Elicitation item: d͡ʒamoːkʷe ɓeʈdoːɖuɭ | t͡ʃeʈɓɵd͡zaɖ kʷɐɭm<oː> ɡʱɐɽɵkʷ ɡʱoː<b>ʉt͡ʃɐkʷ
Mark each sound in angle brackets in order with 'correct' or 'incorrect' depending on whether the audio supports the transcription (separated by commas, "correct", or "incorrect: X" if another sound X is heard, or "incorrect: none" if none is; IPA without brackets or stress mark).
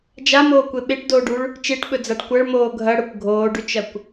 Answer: correct, incorrect: ɖ